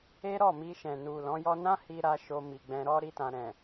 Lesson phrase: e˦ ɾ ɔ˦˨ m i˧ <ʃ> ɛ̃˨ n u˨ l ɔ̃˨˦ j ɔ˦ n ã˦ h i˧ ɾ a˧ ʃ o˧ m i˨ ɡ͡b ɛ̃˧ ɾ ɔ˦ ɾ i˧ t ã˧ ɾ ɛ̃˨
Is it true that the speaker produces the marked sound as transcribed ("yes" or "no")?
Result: yes